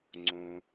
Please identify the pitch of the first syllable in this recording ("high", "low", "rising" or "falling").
low